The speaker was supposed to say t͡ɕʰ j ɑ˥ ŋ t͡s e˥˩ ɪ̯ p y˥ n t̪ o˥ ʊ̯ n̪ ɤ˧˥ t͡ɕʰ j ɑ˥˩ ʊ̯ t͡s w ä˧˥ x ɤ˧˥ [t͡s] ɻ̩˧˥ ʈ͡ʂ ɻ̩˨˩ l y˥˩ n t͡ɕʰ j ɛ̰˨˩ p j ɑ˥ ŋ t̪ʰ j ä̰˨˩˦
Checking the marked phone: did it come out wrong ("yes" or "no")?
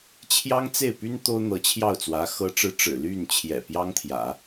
yes